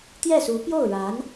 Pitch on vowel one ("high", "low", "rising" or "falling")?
falling